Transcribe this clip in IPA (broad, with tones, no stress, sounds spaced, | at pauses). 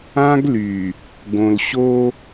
ã˦ ɡ l y˨ | ɡ õ˨ l ɕ o˦